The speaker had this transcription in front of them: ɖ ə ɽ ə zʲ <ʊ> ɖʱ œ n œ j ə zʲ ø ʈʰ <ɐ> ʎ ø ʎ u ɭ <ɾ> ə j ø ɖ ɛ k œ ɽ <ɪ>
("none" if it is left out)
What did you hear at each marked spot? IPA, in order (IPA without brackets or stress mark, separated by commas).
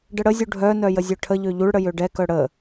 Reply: u, ə, ɽ, ə